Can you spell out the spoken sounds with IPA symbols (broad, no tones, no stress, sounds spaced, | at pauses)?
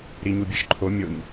ɾ i ɲ u bʲ e ʃ ǃʰ o mʲ o ɲ